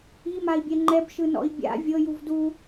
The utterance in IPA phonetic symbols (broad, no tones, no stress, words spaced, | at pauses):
imai̯bʲɛ ŋ͡ǃɛbʃɯnɔ̰i̯ bʲa̰ vʲɤjuv du